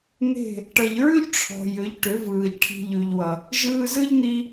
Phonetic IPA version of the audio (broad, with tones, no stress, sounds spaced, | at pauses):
n̪ e̤˦˨ | ʈ ʌ˨ ʎ ɹ ʉ˦ ʎ ʈ͡ʂʰ ɔ̤˨ j ʏ˨˦ ʎ ʈ ʏ˨˦ v ɯː˨ ʎ ʈʰ i̤˧ ʎ ʉ˨ ʎ w ʌ˨ | ʒ ɯː˧ z ɯ˦ ʎ n̪ i˧